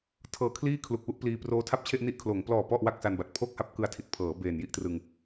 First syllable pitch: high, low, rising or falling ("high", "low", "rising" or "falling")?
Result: low